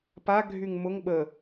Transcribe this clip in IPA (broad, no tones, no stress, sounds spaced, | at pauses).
p a ɡʱ y ŋ m ʊ ŋ ɓ ə